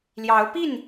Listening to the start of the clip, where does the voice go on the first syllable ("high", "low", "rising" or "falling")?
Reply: rising